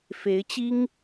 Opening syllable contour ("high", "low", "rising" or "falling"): rising